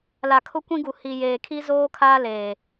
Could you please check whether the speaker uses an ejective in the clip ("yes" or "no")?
no